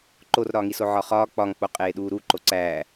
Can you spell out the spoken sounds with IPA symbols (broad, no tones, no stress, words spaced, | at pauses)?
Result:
ǃorɾɒːŋiso ʕɒχɒː k͡pɒŋk͡po qʼeːɗuːɾuǃo ǀæː